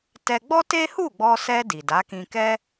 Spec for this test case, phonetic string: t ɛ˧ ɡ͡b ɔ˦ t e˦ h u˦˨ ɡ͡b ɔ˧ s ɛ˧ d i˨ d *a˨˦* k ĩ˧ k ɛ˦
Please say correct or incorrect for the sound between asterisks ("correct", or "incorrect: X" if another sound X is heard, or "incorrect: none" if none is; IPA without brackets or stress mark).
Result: correct